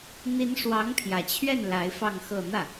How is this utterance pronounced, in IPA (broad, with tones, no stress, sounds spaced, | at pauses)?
n̪ i˧˥ n ʂ w ɑ˧˥ ŋ pʰ j ä˨˩ t͡ɕʰ ɥ ɛ˥˩ n l a˧˥ ɪ̯ f ɑ˥˧ ŋ x ɤ˥˧ n̪ ä˥˩